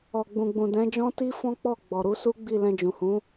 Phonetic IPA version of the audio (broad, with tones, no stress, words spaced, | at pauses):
ɔ˨ɡ͡bũ˨ɡ͡bũ˨ dɛ̃˨˦d͡ʒɔ̃˦ ti˦fɔ̃˦ k͡pɔ˦˨ɡ͡bɔ˨ ɾu˨˦su˦ɡ͡bi˦˨ lɛ̃˧d͡ʒũ˨hũ˨˦